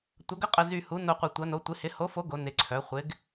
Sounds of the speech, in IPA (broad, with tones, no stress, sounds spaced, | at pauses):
tʷ ɐ˩˧ ɡ ə˨˥ qʼ ə˨˩ z y˨˩ h u˩˧ n o˨˩ qʷ ɪ˨˩ tʷ ɐ˩˧ n o˩˧ tʷ ɪ˩˧ h ɪ˩˧ h o˨˥ f o˨˥ ɡ o˩˧ n ɪ˨˩ ǀʰ œ˩˧ χʷ ɪ˩˧ ɡ